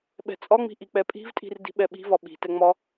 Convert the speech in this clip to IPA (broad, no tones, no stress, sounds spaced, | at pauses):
ɓ ɛ̤ t͡sʼ ɒ ŋ͡m i̤ ʔ i k͡p ɛ pʼ i̤ v tʼ i̤ r d i̤ ɓ ɛ ɓ i̤ v ɒ ɓ i̤ t ɛ ŋ͡m ɒ